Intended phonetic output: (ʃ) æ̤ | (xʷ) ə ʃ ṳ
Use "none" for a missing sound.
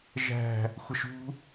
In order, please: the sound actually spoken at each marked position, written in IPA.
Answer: ʒ, xʷ

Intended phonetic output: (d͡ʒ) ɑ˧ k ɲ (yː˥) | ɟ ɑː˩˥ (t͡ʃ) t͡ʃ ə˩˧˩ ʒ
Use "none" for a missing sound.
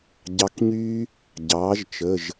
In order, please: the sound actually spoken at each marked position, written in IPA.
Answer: ɟ, yː˥, ʒ

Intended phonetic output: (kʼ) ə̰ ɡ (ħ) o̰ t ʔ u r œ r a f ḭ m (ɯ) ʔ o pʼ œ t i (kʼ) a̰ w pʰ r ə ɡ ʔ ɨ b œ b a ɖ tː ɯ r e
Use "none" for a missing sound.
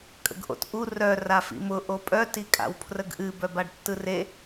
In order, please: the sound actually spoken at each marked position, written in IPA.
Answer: kʼ, ʔ, ʊ, kʼ

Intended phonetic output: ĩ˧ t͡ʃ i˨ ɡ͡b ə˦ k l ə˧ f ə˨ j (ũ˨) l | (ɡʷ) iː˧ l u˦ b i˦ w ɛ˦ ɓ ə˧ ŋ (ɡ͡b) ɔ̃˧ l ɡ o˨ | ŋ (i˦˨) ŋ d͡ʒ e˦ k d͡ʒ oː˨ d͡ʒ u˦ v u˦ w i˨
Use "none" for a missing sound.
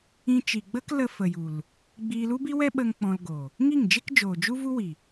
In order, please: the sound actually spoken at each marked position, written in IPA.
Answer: u˨, ɡ͡b, k͡p, i˦˨

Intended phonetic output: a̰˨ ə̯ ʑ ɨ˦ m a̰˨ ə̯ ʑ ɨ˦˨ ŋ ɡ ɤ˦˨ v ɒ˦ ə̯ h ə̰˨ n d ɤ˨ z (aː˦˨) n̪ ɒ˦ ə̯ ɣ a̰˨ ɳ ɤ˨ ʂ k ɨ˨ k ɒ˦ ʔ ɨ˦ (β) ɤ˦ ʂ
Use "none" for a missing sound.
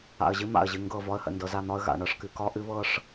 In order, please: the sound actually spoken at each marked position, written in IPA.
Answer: a˦˨, β

